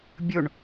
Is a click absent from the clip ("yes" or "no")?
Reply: yes